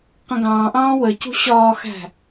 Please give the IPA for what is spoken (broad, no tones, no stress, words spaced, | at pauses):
qə̃ɡɑ̃ːʔɑ̃ː wəcṳ ɕɒːxæ̤